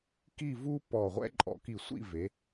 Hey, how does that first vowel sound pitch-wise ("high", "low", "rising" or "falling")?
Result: falling